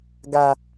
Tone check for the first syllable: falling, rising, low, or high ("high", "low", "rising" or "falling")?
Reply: low